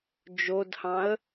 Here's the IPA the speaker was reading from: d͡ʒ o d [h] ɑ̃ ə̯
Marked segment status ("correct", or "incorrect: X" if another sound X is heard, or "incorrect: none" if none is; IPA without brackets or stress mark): correct